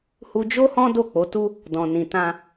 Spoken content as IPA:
h u˧ d͡ʒ o˦ h ɔ̃˦ d o˦˨ k͡p o˨˦ t u˦ | d ɔ̃˨ n ĩ˨ t ã˧

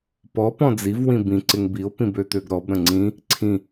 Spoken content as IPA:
p ɔ p ɔ̃ d͡z i v w ĩ b ĩ ǀ ɪ ŋ b i o̯ p ĩ b ø t̪ ø ɡ ɾ ɔ b ɾ ə̃ ŋ͡ǀ ĩ | ǀʰ ĩ

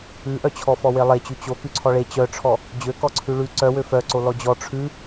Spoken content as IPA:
ʉ ʔ œ t͡ɕʰ ɔ f ɔ w e lˠ e t͡ɕ ʉ t͡ɕ o k ʉ ǀʰ ɔ ɭ e t͡ɕ œ ʈ͡ʂʰ ɔ | d͡ʑ ø k ɔ ǀʰ ʉ ɭ ʉ ǀ œ w ø f œ ǀ o l ɔ d͡ʑ ɔ ʈ͡ʂʰ ʉ

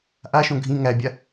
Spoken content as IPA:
ʔ a ʃ õ ɡʱ ĩ ŋ æ bʲ a

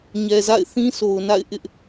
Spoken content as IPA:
ɲ ɛ˨ z a̰˦˨ ɪ̯ θ ĩ˦ s o˨ ʊ̯ n a̰˦˨ ɪ̯ ʔ ɪ˦ ʔ

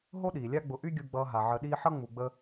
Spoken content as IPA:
ɦ o˦ ɗ iː˨ lʲ a˦ ɡ͡b ʊ˧ ʔ y˦ ɡʲ u˧ ɡ͡b ʌː˧ ɦ a˨ ʕ ə˧ ɗ iː˦ ħ ʌ˦ ŋ͡m u˧ ɡ͡b ə˦

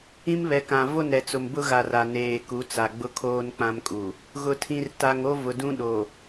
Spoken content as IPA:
ĩ˦ m β ɛ˨ k ã˨ v o˦˨ n ɾ ɛ˨ t͡s ʊ˨ m b ʊ˦ ɣ a˨ r a˨ n eː˨ k u˨˦ t͡s a˨ ɡ͡b ʊ˦ kʰ oː˦ n k͡p ã˦ m kʼ u˨ | ɣ ʊ˨ tʰ ĩ˨ r t a˨ ŋ o˦ v ʊ˨ d ũ˦ ɗ o˨

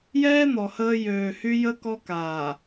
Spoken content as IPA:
j ɛː˦ n̪ ɔ˨ h əː˦ j øː˨ h y˦ j ə˦ k ɔ˦ k aː˨

